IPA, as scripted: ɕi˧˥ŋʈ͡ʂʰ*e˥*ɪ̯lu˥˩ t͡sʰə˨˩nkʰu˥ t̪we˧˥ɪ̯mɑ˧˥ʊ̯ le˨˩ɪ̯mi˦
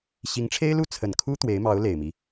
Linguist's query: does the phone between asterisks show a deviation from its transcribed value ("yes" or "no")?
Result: no